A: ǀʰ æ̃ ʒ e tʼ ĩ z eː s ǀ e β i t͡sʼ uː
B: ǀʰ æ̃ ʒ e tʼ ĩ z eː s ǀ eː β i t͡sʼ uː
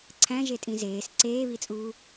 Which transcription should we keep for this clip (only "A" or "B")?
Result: B